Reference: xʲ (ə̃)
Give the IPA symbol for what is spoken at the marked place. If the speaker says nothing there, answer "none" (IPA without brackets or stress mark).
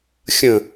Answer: ə̃